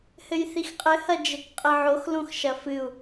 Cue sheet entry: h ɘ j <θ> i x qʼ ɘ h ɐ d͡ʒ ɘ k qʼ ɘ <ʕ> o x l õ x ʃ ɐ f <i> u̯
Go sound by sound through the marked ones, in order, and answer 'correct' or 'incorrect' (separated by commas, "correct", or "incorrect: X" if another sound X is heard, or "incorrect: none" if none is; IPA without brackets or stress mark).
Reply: correct, correct, incorrect: ɨ